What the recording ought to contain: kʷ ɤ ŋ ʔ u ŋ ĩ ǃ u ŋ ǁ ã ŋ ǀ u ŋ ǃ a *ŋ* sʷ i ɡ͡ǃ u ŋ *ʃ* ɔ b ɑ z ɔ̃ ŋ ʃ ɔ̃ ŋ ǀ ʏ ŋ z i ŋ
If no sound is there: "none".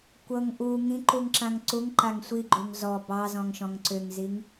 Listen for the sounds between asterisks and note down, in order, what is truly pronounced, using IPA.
ŋ, z

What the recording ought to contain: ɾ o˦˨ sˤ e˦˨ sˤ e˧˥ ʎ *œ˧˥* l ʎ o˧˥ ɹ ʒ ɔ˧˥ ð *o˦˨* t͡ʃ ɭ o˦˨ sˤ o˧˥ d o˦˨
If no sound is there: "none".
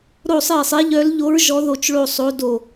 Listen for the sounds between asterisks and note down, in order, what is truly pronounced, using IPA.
œ˧˥, o˦˨

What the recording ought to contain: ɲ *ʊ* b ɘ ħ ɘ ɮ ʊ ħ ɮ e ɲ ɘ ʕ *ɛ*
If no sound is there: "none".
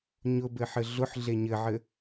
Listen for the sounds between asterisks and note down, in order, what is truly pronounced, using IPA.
ʊ, ɘ

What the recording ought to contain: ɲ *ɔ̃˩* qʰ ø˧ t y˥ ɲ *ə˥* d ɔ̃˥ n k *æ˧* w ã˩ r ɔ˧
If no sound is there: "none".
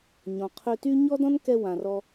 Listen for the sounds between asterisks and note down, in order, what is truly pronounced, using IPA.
ɔ̃˩, ɔ˥, ɛ˧

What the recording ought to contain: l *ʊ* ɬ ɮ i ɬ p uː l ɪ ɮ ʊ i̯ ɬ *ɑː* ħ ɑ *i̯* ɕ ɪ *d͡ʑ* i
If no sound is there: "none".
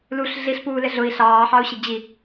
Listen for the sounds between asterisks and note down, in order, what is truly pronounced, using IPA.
u, ɑː, u̯, d͡ʑ

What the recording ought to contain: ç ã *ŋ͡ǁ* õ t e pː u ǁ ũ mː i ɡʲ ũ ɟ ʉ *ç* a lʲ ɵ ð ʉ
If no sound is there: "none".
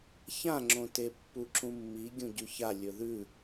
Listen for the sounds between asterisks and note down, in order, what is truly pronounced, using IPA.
ŋ͡ǁ, ç

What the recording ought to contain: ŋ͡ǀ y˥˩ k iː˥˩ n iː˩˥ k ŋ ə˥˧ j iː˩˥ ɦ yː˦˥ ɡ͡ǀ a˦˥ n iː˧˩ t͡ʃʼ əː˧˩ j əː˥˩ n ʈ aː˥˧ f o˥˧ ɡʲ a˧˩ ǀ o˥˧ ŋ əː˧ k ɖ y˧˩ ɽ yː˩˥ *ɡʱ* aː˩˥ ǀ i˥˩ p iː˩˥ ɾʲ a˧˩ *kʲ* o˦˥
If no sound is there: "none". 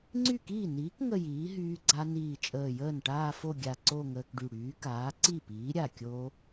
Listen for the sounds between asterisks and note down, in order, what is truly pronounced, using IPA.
k, kʲ

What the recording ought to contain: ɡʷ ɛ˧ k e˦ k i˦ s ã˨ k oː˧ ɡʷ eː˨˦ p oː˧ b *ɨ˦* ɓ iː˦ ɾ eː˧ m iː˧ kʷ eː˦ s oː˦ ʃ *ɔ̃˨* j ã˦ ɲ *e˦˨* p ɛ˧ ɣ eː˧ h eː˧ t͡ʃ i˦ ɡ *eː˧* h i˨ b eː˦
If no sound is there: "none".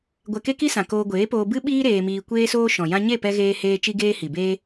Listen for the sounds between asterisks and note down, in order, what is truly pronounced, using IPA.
ɨ˦, ɔ̃˨, e˦˨, eː˦

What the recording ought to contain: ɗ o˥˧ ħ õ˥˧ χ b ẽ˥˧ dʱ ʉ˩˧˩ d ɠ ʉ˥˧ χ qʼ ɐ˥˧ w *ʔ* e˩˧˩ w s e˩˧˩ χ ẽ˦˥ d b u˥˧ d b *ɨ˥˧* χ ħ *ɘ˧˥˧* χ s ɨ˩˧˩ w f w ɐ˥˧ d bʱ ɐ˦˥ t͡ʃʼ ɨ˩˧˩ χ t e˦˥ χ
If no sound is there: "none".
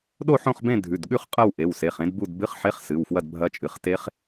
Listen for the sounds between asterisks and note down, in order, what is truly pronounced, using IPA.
ʔ, ɨ˧˥˧, e˧˥˧

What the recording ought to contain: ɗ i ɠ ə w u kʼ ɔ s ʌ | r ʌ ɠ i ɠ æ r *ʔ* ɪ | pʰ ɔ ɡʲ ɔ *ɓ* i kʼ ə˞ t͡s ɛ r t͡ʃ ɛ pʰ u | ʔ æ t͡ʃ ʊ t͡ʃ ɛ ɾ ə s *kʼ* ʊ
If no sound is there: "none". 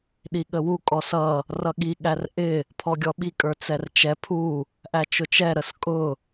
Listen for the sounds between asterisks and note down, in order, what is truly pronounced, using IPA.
ʔ, ɓ, kʼ

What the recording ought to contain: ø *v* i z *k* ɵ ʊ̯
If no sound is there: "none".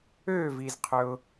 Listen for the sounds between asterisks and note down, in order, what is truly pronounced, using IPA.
v, qʰ

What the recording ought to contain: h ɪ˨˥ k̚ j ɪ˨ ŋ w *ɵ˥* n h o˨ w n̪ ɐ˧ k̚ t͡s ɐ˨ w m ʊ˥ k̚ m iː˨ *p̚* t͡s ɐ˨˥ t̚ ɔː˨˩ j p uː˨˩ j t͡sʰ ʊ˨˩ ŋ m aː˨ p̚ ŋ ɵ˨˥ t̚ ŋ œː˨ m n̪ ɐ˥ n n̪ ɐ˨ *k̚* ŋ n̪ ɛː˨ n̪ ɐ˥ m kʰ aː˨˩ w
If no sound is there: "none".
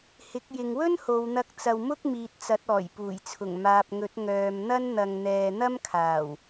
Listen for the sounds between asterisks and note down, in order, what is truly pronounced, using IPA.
ɵ˥, t̚, none

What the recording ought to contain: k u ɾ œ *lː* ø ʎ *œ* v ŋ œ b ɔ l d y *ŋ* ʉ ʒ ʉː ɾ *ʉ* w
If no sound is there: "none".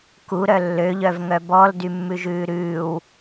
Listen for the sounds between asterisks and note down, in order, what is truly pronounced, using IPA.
lː, œ, mː, ʉː

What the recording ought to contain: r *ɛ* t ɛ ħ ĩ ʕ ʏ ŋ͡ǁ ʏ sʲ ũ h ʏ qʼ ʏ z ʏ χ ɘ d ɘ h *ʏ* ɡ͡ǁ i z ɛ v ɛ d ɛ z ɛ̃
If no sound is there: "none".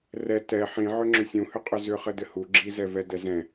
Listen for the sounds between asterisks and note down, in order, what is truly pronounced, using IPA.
ɛ, u

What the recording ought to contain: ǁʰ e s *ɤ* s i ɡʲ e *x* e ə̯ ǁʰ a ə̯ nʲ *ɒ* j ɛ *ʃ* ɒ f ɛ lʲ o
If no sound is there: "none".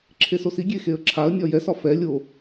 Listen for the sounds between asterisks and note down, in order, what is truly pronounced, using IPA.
o, x, ɒ, s

